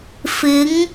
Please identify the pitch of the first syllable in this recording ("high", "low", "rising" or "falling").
rising